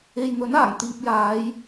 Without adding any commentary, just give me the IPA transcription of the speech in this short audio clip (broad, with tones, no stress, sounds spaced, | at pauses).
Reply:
e˨ j n̪ ɵ˨˥ n aː˨˩ ŋ t̪ iː˨ p̚ j aː˨˧ j